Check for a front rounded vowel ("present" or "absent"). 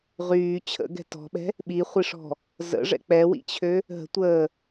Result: present